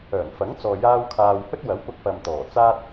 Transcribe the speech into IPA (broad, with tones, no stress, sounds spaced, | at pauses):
œː˨˩ n f ɐ˨˥ ŋ t͡s ɔː˨ j aː˧ w kʰ aː˨ w h ɵ˥ t̚ w ɐ˨˥ w p ʊ˧ k̚ p ɐ˨ m t̪ ɔː˨˩ t͡s aː˥ t̚